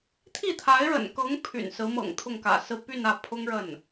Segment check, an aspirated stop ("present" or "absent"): present